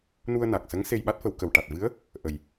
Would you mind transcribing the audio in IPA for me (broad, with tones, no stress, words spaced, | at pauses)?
nu˧ə̯na˨˩k̚sə˧˥ŋ se˧jɓa˦˥t̚fə˨˩˦w kə˨˩wʈa˨˩t̚vɨ˧˥ə̯ | ʔə˨˩j